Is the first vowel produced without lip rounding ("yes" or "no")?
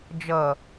yes